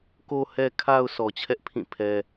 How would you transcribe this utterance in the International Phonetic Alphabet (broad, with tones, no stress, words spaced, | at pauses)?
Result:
ko˨hɛ˨kʰa˨ʊ̯ sʰɔ˨t͡ɕʰɛ˦ʔpʰĩ˦˨ pʰɛ˦